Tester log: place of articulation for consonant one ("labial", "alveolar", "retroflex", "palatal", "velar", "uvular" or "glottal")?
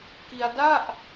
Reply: velar